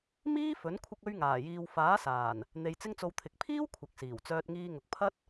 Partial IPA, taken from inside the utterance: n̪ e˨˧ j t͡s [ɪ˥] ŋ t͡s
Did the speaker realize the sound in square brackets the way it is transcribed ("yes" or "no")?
yes